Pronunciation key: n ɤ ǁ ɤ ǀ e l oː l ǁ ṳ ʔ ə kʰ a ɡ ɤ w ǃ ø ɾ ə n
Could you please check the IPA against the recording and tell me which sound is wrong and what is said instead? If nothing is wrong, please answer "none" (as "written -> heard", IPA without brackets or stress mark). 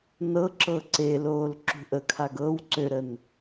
ǃ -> ǀ